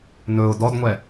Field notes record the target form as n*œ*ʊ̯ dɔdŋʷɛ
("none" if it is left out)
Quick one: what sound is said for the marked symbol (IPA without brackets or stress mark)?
ɵ